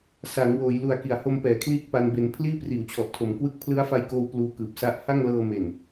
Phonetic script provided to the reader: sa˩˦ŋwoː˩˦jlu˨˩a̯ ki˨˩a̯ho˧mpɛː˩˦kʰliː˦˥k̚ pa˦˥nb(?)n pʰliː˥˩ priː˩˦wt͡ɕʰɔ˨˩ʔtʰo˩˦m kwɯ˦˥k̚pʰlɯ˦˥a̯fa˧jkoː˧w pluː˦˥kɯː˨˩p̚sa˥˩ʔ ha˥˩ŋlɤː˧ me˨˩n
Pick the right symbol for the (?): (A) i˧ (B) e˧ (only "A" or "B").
B